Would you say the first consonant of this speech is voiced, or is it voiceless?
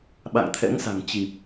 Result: voiced